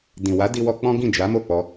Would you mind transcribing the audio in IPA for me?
d ĩ˨ w a˨˦ d i˧ w ɔ˧ k͡p ɔ̃˦ ɡ ĩ˦˨ d͡ʒ a˨˦ m o˦˨ k͡p ɔ˧

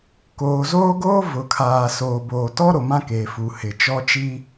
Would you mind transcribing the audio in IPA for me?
k oː˨ z oː˦ ɡ oː˦ v ʊ˨ kʰ aː˨ s oː˨ b oː˨ t ɔ˦ ɾ o˨ m ã˦ k eː˨ f u˨ h ɪ˨ t͡ʃ ɔ˦ t͡ʃ i˦

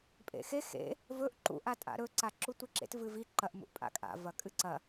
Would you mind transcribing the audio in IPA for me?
pʼ ḛ x e x ḛ | v ɵ ʔ ǃ ṵ ʔ a tʼ a̰ ɾ ɵ ǀ a ǁ u tʷ i ǁ ḛ t v ɨ v i ǃ ɐ ʔ m ṵ ʔ pʼ a̰ kʼ a̰ v ɐ kʼ ɨ ǀ ɐ

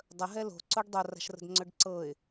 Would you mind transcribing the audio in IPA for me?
dˤ ə ɦ ɛ l o̤ ǀ o ɖ dˤ o r a̤ ʃ r ə̤ d ŋ͡ǀ ɵ ɖ ǀ ɤ ɪ̯

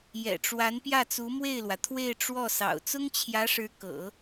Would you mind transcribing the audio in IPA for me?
j ɛ̰˨˩ ʈ͡ʂ w a˧˥ n p j ä˥˩ t͡s u˧˥ m w e˥˩ ɪ̯ l w ä˩ t̪ʰ w e˥˧ ɪ̯ ʈ͡ʂ w ɔ˥˩ s ɑ̰˨˩ ʊ̯ t͡s ʊ˥ ŋ t͡ɕʰ j ä˧˥ ʂ ɻ̩˧˥ k ɤ̰˨˩˦

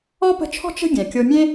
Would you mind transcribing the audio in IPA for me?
ɔ˥ p ə̤˦ t͡ʃʰ ɔ̤˥ t͡ʃ ə̤˦ ɡʲ ɛ̃˩ kʲ o˦ mʲ ẽ˥

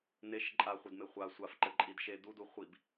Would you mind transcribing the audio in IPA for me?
n e ʃ ǃʼ a χʷ ɘ d m e χʷ a sʷ a f ǃ ɘ ǃʼ i d ʃ e d u d u χʷ i b

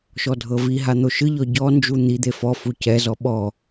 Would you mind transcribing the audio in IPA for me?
ʃ ɔ dʱ ɤ v i ɦ a n̪ o ʃ ɯ ʎ ɔ ɟ ɔ n d͡ʒ u n̪ i d̪ e f ɔ f u c ɛ z ɔ ɓ ɔ

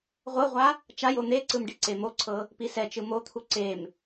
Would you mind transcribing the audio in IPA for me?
ʁʷ ɤ ʁʷ a | t͡ʃ a j o n̪ e ǀ ɯ m ɖ i ǀ e m o ǀʰ ɤ | p i s ɛ t͡ʃ ɯ m o t̪ʰ u ǀ e m

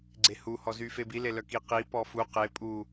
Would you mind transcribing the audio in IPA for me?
ɡ͡ǀ e h u h ɔ z y f e b i l e l œ k i q i p ɔ f u q e pʼ u

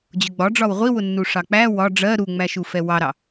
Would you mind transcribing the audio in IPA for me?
d͡ʑ ʊ ɡ͡b ɒ ɖ͡ʐ ɒ w ʁʷ i w ʊ nː u ʂ ɑ k͡p æ w ɒ ɖ͡ʐ ɜ ɾ u ŋ͡m æ ʃ u f ɛ w ɑ ɾ ɑ

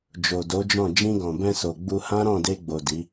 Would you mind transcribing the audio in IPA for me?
d͡ʒ o˨ d o˨˦ d͡ʒ ɔ̃˦˨ d͡ʒ ĩ˧ ɡ ɔ̃˨ b ɛ̃˧ s o˨ ɡ͡b u˧ h ã˦ ɾ ɔ̃˦˨ d e˧ ɡ͡b o˨ d i˨˦

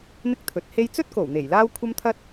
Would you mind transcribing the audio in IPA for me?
n̪ ɪ˥ k̚ t̪ʰ ɵ˨˥ t̚ h e˥ j t͡s ɵ˥ t̚ k o˨˩ w n̪ e˨˩ j l aː˥ w kʷʰ ɐ˥ m t̪ʰ ɐ˥ t̚

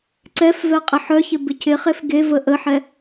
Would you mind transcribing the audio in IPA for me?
ǀ ɛ f v ɛ qʼ ɪ ħ œ ç ɪ b ɪ cʰ ɪ χ e f ɡ e v ə ʔ ə ħ ɛ

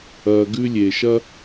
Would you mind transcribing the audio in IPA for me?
ɐ˨ ɡ ʉ˥ lʲ e˩ ʃ ɐ˥

